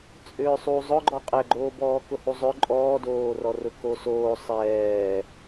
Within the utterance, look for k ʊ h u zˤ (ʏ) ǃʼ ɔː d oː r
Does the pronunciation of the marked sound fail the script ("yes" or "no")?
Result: no